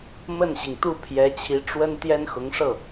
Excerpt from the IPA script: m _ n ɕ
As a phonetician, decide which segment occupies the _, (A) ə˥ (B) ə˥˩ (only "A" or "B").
B